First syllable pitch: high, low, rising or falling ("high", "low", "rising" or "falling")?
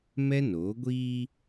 high